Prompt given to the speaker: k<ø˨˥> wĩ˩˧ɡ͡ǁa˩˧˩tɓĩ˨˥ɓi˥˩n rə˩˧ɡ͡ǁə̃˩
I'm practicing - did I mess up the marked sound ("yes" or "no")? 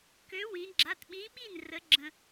no